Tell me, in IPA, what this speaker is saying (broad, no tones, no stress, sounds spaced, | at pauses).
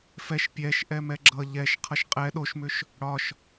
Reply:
f ɛ ʃ pʲ ɛ ʃ ʔ ɛ m ɛ ɡ͡ǁ ʌ ʎ ɛ ʃ qʰ ʌ ʃ qʼ ɛ ɗ o ʃ m ʏ ʃ | ɽ ɒ ʃ